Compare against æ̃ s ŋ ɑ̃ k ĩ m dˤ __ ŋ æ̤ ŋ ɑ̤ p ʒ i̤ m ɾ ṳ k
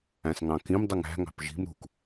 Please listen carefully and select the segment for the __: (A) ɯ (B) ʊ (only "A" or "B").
A